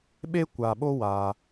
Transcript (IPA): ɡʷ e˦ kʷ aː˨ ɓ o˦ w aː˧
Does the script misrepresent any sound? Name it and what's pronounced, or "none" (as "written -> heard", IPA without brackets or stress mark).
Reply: ɡʷ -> ɓ